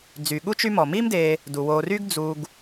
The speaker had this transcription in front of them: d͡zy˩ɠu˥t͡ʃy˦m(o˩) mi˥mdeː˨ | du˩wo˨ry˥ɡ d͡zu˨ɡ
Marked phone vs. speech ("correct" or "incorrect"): incorrect